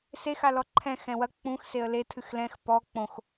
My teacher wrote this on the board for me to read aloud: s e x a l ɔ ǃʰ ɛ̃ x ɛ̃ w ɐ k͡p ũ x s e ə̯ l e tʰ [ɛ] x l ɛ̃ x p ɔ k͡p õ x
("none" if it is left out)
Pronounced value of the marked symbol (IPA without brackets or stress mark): ɨ